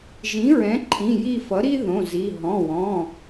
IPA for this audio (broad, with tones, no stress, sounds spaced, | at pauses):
ʒ ĩ˩˥ ɹ ɛ̃˩˥ ǃʰ ĩ˩˧˩ j i˦˨ f ʌ˩˥ ɾ i˥ ð õ˩˧˩ z i˩˧˩ ɦ ɔ̃˩˧˩ w ɔ̃˩˧˩